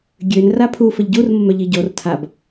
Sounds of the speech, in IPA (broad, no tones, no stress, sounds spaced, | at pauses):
ɡʲ ø n r a pʰ u f ə ʎ ɟ u r m ə m œ ʎ i ɟ o r tʰ a b